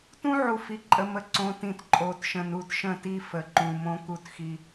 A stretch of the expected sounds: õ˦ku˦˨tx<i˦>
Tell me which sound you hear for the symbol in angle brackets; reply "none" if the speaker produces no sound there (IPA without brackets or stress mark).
i˦